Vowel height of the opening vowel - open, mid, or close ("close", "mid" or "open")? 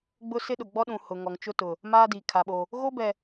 close